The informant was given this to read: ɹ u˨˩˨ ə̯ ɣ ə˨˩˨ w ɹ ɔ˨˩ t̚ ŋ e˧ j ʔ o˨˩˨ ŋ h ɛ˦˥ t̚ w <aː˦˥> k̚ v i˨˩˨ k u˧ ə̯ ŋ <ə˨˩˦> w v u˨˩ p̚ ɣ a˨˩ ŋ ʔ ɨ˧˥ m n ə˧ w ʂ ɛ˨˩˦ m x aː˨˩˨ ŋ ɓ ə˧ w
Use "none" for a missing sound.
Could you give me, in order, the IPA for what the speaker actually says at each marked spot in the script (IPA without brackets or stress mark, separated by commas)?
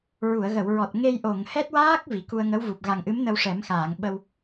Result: aː˦˥, ə˧˥